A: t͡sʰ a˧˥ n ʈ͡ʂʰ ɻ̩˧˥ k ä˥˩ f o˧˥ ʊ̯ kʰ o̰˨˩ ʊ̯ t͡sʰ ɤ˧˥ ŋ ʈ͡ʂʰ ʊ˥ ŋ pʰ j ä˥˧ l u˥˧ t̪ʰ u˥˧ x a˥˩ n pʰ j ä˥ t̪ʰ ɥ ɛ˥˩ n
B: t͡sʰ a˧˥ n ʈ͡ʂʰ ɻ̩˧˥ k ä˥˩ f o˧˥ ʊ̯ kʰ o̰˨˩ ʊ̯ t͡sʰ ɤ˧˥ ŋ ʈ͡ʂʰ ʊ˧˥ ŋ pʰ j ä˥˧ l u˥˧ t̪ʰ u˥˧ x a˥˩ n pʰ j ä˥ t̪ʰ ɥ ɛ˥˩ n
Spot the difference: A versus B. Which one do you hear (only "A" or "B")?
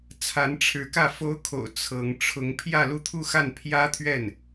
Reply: B